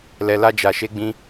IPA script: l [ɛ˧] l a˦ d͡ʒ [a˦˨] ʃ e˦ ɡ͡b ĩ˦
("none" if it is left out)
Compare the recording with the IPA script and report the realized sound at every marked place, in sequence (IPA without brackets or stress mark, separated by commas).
ɛ˧, a˧